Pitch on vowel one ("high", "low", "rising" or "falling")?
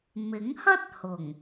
rising